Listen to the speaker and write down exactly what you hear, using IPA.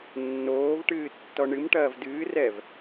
nː oː v ʈ ɨː tː ɔ ɳ ɨ m ʈ ɐː v d ɨː r ɛ v

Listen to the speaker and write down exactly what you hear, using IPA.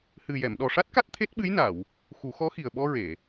h ɨ˨˩ j ɛ˨˩˨ m ɗ ɔ˨˩ ʂ a˦˥ t̚ k a˦˥ t̚ t̪ʰ e˦˥ t̚ ɓ ɨ˧˥ j n a˨˩˨ w | x u˨˩˦ x ɔ˧˥ x i˨˩ ə̯ ɓ ɔ˧ ɹ e˨˩˨

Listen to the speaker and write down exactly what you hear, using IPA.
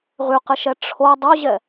ʁ y q ɪ ʃ ɛ ʈ͡ʂʰ o dˤ o ʑ ɛ

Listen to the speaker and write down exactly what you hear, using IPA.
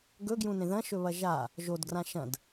ɡ ɵ ɡ j ũ n ẽ ð ɐ̃ ʃ ɵ β ɐ ʒ a | ʒ o d ɡ r ã ʃ ɐ̃ d

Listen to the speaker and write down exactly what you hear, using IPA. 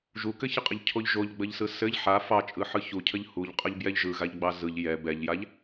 ʒ u k ɘ ç ɘ qʼ ɘ ʎ cʰ o ʎ ʒ o ʎ ɡ͡b ə ʎ s ɯ s ɘ ʎ ħ a f ɑ t͡ʃʼ ɯ ħ ɯ ç u cʰ ə ʎ h u ʎ qʼ ə ʎ b j ɛ ʎ ʒ ɯ ɣ a ʎ ɡ͡b ɑ z ɯ ʎ j ɛ b ɛ ʎ j a ʎ

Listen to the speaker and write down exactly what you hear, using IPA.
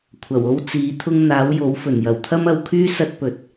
kʷʰ ɐ˨˩ w o˥ w t͡s iː˨˥ t̪ʰ ʊ˥ ŋ n̪ aː˨˥ w j o˨˥ w f ɵ˨˩ n j ɐ˨˩ w t̪ʰ ɐ˥ m ɐ˧ w kʰ yː˥ s ɐ˥ t̚ p ɵ˨ t̚

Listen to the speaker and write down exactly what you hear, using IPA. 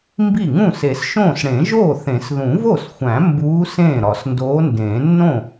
m b i˥˩ ŋ ũː˥˩ s e˨˩˦ s ʃ õː˥˩ s ɽ ẽ˨˩˦ ʒ oː˥˩ θ ẽ˨˩˦ s ð ũ˨˩˦ v o˥˩ s xʷ æ̃˨˩˦ m b uː˧˥ s ẽː˥˩ ɾ ɒ˨˩˦ s n d oː˧˥ n d ẽː˨˩˦ nː õ˥˩

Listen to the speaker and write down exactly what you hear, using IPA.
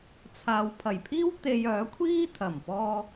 t͡sʰ aː˨ w pʰ ɐ˨˩ j pʰ iː˥ w t̪ e˧ j œː˨˥ kʷʰ iː˥ t̪ʰ ɐ˨˩ m p ɔː˧

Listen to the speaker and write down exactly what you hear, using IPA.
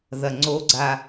ð ɐ ŋ͡ǀ o ɡ͡ǀ a

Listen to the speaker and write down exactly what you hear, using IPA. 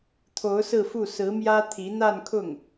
t̪ʰ o˧˥ ʊ̯ s ɹ̩˥˧ f u˥˩ s ɹ̩˧˥ m j ä˥ t̪ʰ i˧˥ n̪ a˥˧ n kʰ ʊ˥˩ ŋ

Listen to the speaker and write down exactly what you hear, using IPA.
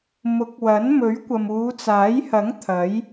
m ʊ˨˥ k̚ w ɐ˨˥ n m ɵ˨˥ ɥ kʷ ɐ˨ m uː˨˧ t͡s aː˨˥ j h ɐ˨˥ ŋ t̪ʰ ɐ˨˥ j

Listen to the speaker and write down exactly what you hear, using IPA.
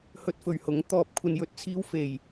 h ɵ˧ t̚ f ɵ˨ ɥ h ʊ˨˥ ŋ t̪ ɔː˨ p̚ kʷʰ ɐ˧ n j ɵ˨ t̚ t͡sʰ iː˥ w f e˨ j

